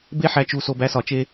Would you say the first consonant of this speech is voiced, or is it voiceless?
voiced